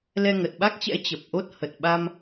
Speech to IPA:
l ɛ˧ ŋ ə˨˩ t̚ ɓ a˦˥ k̚ t͡ɕ ɛ̰˧˥ t͡ɕ ə˨˩ p̚ ʔ o˦˥ t̚ h ə˨˩ t̚ ɓ a˧ m

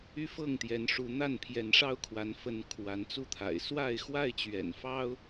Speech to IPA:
y˦ f ɤ˥˨ ŋ t̪ j ɛ˨˦ n ʂ u˨˦ n̪ a˥˨ n pʰ j ɛ˨˦ n ʂ ɑ˦ ʊ̯ kʰ w a˨˦ n f ə˨˦ n kʰ w a˨˦ n t͡s u˥˨ t̪ʰ a̰˨˩ ɪ̯ s w a˥˨ ɪ̯ x w a˥˨ ɪ̯ t͡ɕ ɥ ɛ̰˨˩ n f ɑ˦ ʊ̯

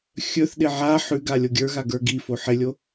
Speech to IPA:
xʲ ɵ θ ɗ ɪ ʕ a ħ ʉ ɡ a lʲ o ɡʲ ə˞ ɣ a ɡ ə˞ ɡ i f o ħ ɪ lʲ o

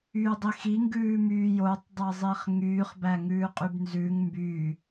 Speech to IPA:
yː dˤ i x i ŋ ɡ ʉː m yː j o tˤ dˤ ɛ zˤ i χ ŋ yː χ b æ ŋ ʉː qʼ y b n z ʉ ŋ m b yː

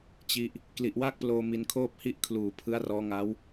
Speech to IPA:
t͡ɕ i˦˥ ʔ | k l i˨˩ ʔ w a˥˩ k̚ p l oː˧ m i˧ n kʰ oː˥˩ p̚ h i˥˩ ʔ kʰ l uː˨˩ pʰ ɯ˦˥ a̯ r ɔː˦˥ ŋ a˦˥ w

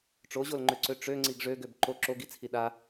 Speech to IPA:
ʈ͡ʂ o ʑ o l ŋ͡ǃ ø ǀ ø ʈ͡ʂ ø ŋ͡ǀ i ɡ ʐ ø ɡ ø b ǃ o ǁ o ɡ i t͡sʰ i ɗ a

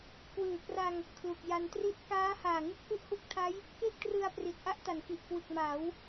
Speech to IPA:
k w ɯː˨˩ k r a˧ ŋ | kʰ l u˨˩ k̚ j a˧ n t r i˥˩ t̚ k aː˦˥ h aː˨˩ ŋ ɯ˦˥ k̚ ʔ u˦˥ ʔ h u˦˥ k̚ tʰ a˦˥ j | k e˥˩ k̚ t r ɯ˧ a̯ p r i˨˩ t̚ ʔ a˥˩ ʔ t a˩˦ n k i˨˩ ʔ k w ɯ˨˩ k̚ m a˩˦ w

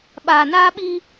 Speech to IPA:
ɓ aː˨ n aː˦ ɓ i˦

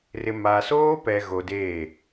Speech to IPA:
r ɪ˨ m a˨ s oː˦ p ɛ˨ ɣ o˨ d eː˦˨

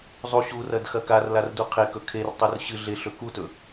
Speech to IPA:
zˤ u ɕ u r ɐ d x ɐ k a r l a r d u qʰ e k ɵ kʰ e r tˤ ɵ r ɕ ɨ ɮ e ɬ ɵ k u t ɵ

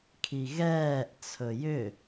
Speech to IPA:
kʰ i ɣ ɛː ʔ t͡sʰ ɵ j ʏ

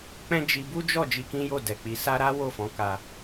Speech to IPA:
k͡p ɛ̃˦ d͡ʒ i˧ b u˦ d͡ʒ ɔ˦˨ d͡ʒ i˧ k ĩ˦ j o˦˨ d ɛ˨ k͡p i˨˦ s a˦ ɾ a˦ w o˦˨ f ɔ̃˨˦ k a˧

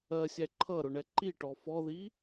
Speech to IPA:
ɜ sʲ æ ǃʰ ʌ ɾ ʊ ɳ ɛ ǃ i ʈ ɔ f ɔ ð i

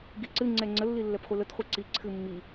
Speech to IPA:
ɡ i ǀ ɨ ŋ͡ǀ ɛ ŋ͡ǀ ə lː i lː ɛ p χʷ i l ə t χʷ ɛ ǀ i ǀʰ ɨ mː i

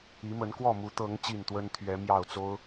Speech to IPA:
i˨˦ m ə˨˦ n k w ɔ˥˨ m u˨˦ t̪ ɤ˨˦ ŋ t͡ɕ i˨˩ n t̪ w ə˦ n t̪ʰ ɥ ɛ˨˦ m j ɑ˥˨ ʊ̯ t͡s o˦ ʊ̯

